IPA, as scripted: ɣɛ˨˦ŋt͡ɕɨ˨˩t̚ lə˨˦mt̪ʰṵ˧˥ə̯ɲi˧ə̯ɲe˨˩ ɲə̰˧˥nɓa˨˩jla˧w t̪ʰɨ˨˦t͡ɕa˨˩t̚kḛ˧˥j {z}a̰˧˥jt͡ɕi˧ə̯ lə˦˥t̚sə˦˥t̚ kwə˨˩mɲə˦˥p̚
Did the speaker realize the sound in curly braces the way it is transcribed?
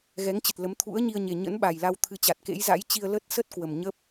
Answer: yes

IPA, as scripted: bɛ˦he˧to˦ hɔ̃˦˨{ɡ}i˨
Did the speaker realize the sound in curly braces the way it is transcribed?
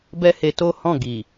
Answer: yes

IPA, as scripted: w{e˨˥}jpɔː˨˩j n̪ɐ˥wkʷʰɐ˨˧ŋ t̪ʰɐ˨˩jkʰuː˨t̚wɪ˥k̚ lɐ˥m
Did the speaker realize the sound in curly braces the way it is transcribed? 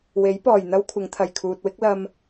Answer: yes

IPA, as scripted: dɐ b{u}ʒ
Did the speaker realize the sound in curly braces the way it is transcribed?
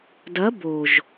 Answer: no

